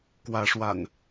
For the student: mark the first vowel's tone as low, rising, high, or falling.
rising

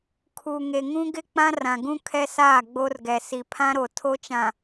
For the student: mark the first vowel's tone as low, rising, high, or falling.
low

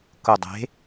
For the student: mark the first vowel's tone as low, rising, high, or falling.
low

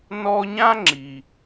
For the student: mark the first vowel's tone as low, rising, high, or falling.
high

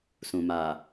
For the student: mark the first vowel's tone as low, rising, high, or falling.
low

